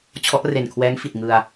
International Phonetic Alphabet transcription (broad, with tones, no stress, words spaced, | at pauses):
t͡ɕʰɔ˦˥ʔre˨˩nkʰwɛː˦˥ŋfi˨˩t̚ ŋɯ˧a̯